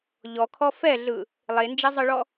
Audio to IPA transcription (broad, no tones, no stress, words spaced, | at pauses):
ʎɔkʰɔ fɛɮɯ | lˠend͡ʒɛzˤɯɭɔ